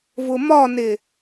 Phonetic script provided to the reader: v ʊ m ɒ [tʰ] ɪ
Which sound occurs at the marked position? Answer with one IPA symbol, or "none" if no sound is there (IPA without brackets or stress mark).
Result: n